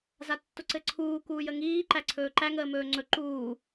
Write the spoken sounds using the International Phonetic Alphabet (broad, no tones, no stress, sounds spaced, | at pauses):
z a tː ʊ ǀ ɘ ǀʰ uː k uː j ə ŋ iː ǃ æ ǀʰ ɵː ǃ æ ŋ əː m ɵː ŋ͡ǀ ɵ ǃ uː